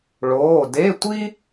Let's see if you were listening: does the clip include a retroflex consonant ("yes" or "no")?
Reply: yes